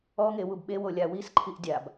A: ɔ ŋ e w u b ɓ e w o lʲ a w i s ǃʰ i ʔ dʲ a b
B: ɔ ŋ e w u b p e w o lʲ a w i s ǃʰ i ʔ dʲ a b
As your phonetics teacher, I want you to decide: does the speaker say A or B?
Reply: A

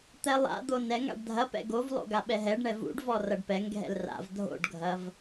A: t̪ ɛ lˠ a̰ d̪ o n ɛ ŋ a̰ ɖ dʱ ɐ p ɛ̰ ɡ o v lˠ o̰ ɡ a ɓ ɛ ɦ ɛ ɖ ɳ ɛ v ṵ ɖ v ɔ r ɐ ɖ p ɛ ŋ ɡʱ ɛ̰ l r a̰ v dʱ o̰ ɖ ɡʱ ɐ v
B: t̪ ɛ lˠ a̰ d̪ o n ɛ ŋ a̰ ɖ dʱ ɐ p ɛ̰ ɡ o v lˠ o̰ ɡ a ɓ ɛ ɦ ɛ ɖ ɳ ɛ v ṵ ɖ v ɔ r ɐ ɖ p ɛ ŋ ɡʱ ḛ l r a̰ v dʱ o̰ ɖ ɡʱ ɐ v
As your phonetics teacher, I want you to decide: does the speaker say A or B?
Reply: A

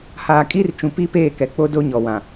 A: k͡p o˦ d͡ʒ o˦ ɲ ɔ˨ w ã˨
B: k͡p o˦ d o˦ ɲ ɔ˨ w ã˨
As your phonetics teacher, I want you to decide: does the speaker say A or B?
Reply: B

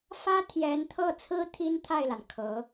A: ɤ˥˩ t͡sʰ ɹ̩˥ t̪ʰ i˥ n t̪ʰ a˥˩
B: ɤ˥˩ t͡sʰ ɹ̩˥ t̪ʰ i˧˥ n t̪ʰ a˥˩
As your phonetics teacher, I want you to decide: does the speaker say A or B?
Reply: A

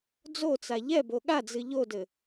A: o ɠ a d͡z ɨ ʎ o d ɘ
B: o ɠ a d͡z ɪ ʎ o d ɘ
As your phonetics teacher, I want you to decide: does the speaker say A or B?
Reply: A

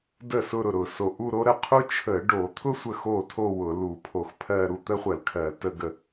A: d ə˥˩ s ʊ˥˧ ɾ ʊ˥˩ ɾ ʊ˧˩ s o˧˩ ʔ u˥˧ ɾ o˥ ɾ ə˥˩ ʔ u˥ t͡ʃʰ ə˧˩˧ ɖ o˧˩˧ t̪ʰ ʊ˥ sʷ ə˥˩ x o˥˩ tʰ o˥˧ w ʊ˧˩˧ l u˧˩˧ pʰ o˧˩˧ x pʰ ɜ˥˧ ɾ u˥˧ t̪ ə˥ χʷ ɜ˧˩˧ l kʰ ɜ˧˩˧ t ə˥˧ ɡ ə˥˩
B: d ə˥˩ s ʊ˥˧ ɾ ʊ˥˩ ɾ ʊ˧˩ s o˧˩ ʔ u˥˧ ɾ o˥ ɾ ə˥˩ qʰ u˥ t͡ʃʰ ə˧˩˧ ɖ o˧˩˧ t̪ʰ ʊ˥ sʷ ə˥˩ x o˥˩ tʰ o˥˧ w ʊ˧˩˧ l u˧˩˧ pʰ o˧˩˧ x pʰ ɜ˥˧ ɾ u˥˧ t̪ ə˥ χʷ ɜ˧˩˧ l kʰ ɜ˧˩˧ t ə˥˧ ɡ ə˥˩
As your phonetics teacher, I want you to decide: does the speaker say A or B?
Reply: B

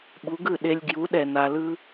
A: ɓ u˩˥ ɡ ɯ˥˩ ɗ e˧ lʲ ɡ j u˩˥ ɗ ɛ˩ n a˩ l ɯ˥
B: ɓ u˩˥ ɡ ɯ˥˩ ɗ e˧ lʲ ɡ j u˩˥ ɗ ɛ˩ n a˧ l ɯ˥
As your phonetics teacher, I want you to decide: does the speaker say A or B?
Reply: B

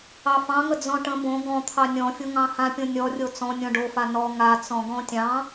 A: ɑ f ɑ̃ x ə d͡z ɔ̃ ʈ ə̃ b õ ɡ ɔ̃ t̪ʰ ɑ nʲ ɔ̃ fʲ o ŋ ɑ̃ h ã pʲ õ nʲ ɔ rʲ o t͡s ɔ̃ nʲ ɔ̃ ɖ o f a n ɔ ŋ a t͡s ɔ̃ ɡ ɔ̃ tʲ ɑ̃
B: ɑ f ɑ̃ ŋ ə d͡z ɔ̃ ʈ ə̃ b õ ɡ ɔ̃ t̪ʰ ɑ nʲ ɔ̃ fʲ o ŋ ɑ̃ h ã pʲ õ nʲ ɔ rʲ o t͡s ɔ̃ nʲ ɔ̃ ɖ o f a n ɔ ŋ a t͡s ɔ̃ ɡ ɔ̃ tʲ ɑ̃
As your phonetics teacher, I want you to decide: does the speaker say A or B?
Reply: B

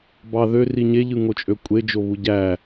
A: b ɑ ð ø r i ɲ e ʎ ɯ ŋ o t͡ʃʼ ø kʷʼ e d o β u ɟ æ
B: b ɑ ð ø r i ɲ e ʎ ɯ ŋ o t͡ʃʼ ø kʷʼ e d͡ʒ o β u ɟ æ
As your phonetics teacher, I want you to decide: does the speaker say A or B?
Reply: B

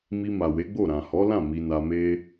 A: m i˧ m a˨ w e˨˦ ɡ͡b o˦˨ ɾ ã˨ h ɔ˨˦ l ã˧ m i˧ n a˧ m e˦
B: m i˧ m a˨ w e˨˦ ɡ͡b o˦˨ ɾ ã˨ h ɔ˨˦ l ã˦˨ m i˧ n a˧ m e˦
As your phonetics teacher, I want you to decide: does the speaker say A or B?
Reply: B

